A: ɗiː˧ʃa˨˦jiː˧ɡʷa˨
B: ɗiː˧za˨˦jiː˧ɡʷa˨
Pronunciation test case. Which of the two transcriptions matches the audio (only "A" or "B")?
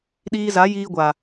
B